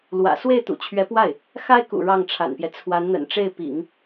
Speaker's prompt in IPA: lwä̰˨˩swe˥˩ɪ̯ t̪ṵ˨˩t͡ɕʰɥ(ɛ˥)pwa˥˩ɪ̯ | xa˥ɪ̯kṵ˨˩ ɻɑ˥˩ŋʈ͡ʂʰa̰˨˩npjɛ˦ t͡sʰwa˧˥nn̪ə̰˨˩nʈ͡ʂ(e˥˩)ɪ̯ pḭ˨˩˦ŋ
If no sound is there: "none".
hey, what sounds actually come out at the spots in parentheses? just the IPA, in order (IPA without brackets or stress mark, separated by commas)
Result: ɛ˧˥, e˥˩